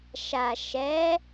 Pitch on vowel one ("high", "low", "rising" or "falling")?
low